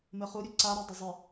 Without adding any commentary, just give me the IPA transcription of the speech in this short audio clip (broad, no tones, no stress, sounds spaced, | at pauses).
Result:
m ɘ χ u ɾʲ ɵ ǀ a ɾ o dˤ ə zˤ ə